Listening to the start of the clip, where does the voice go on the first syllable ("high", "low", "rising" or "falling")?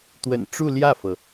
low